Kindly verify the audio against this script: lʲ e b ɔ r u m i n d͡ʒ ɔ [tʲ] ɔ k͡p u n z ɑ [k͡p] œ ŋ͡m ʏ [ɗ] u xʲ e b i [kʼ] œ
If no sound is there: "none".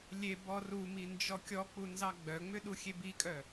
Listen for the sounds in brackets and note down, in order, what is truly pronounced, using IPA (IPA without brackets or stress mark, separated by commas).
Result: kʲ, ɡ͡b, ɗ, kʼ